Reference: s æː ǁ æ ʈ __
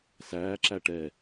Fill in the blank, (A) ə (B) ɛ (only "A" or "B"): B